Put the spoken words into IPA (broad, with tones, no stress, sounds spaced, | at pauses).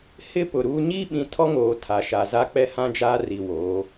h ɪ˦ p ʊ˨ ɾ uː˦ ɲ i˦ ɓ ĩ˨ tʰ ɔ˦ ŋ oː˨ tʰ a˨ ʃ a˨ z a˦ k͡p ɛ˦ h ã˦ d͡ʒ aː˦ r i˨ w oː˨˦